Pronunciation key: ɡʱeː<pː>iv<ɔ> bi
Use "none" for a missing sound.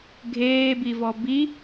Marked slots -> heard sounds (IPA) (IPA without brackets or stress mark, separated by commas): b, ɔ